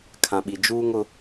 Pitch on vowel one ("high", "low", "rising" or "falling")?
low